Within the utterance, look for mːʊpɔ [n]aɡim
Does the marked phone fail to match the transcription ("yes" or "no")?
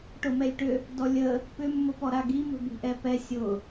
yes